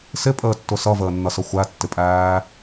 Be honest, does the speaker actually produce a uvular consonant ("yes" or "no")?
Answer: no